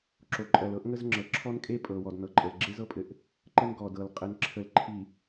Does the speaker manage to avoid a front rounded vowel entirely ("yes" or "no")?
yes